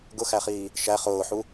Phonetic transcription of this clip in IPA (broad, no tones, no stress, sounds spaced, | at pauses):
ɡ ʊ x æ χ iː | ʃ æ χ ʊː ħ u